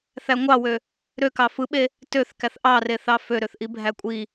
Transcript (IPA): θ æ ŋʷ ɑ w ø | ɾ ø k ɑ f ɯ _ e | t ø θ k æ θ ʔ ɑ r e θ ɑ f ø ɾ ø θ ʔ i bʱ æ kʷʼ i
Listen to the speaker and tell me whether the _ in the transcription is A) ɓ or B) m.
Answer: A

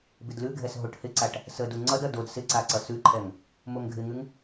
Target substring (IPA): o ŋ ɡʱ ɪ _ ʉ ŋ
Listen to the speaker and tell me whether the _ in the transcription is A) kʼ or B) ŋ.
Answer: B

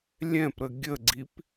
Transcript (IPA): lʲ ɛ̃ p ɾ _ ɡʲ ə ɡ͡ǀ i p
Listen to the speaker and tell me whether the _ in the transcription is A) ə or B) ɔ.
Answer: A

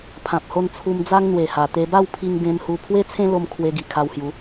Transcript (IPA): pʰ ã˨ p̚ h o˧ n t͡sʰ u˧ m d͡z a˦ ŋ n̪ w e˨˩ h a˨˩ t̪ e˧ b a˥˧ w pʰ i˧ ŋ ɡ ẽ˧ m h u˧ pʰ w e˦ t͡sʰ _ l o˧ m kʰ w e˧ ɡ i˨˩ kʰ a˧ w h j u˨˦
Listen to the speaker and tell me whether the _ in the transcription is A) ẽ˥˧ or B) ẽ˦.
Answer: B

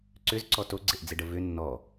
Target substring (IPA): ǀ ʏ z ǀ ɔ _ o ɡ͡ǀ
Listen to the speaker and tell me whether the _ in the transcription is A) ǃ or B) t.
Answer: B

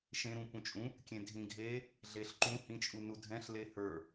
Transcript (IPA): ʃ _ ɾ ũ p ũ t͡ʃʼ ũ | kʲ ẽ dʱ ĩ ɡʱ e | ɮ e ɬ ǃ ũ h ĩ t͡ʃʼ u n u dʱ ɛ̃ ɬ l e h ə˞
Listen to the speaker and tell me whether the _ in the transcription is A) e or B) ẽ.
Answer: B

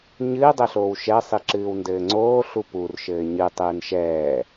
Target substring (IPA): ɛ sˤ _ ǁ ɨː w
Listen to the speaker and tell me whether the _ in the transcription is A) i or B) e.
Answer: A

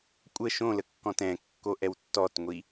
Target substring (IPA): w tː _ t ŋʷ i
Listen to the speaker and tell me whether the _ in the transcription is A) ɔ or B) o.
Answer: A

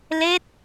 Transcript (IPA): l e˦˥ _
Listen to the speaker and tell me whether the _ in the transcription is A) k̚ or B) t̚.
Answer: B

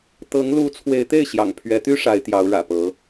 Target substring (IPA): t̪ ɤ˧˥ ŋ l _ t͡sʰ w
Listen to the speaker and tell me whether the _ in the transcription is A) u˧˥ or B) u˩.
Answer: A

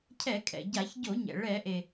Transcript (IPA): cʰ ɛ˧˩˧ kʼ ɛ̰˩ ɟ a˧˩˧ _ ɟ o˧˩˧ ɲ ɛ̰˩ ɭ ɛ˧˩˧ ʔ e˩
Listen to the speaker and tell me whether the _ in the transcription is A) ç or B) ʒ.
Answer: A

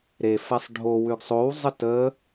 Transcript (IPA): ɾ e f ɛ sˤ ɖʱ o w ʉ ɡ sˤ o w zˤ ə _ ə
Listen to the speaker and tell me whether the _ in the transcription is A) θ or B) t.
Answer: B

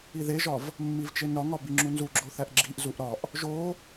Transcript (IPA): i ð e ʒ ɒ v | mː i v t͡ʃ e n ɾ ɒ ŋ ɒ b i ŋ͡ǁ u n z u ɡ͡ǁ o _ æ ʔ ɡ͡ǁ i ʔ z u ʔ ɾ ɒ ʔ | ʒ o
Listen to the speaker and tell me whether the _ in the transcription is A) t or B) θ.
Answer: B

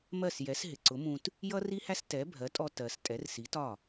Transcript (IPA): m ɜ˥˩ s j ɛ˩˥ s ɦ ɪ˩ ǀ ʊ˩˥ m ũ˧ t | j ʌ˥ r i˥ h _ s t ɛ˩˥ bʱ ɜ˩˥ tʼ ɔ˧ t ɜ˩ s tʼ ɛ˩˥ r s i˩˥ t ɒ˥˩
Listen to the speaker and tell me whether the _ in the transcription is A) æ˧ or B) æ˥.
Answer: B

